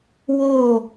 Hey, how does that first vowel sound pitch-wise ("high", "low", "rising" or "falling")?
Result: falling